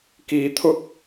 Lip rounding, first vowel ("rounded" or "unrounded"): unrounded